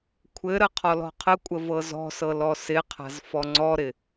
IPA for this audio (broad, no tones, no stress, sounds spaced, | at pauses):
kʷʰ ɘ ɾ ə qʰ ɔ l ɔ̤ qʰ ə kʷʼ ə v ɤ z ɔ̤ s ɤ l ɔ s ɪ qʰ a̤ z f ɔ ŋ͡ǀ ɔ ɾ ɪ